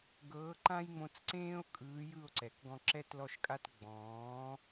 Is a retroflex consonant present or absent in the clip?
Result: absent